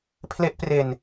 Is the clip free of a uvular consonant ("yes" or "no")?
yes